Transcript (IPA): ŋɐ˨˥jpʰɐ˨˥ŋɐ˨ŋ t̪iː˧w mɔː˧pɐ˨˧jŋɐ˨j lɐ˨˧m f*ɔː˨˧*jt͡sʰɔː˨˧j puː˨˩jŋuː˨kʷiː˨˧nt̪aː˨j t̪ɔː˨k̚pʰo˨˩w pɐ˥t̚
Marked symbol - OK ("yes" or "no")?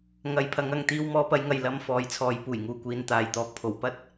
yes